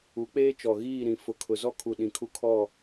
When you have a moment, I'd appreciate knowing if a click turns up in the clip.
no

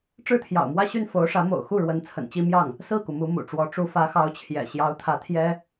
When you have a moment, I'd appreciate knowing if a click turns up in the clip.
no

